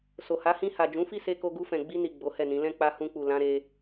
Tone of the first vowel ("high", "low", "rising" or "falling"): low